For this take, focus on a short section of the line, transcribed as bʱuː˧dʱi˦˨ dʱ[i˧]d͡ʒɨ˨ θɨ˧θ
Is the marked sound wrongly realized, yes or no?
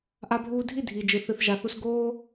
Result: yes